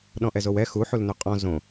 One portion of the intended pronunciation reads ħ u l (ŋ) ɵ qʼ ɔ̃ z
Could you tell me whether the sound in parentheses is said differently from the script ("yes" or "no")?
yes